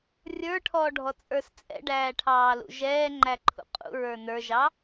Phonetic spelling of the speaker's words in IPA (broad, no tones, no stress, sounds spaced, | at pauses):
rʲ ə˞ ʈʰ ɔː ɖʱ ɔ t͡sʼ ə˞ s t͡sʼ ɛ̰ ɖ æː ʈʰ ɑː l ṵ ʒ ɛː ŋ͡ǃ æ ǃʰ ṵ qʼ ṵ ɹ ə˞ n ə˞ ʒ ɑ